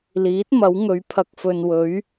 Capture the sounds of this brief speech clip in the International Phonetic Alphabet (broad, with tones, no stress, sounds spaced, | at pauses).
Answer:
l iː˨˥ t̚ m ɐ˨˥ w ŋ ɵ˨˧ ɥ pʰ ɐ˨ k̚ f ɵ˨ n w ɵ˨˥ ɥ